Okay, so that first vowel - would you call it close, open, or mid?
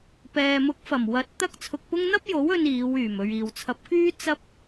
mid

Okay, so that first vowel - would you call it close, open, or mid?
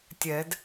mid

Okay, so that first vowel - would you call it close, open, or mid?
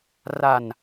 open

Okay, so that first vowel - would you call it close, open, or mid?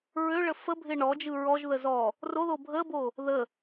mid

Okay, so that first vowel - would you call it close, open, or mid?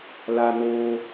open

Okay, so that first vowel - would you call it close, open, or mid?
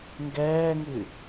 mid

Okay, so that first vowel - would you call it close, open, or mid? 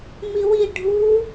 close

